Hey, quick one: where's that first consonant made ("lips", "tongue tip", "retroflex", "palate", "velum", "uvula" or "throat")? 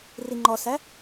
tongue tip